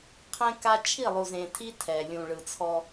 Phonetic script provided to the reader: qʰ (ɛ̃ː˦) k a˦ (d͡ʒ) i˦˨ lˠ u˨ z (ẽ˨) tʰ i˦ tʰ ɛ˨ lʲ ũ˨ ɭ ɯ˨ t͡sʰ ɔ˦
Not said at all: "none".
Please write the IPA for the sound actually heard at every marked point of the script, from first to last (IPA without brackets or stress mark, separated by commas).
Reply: ɛ̃˦, t͡ʃʰ, ẽ˨